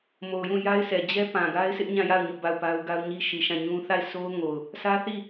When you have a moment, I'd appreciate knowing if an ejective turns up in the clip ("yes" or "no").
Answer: no